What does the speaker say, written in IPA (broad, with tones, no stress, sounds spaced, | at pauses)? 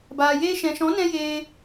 b aː˨ j eː˦ ʃ ɛ̃˨ ʃ ɔ̃˨˦ n ɛ̃˦ j eː˧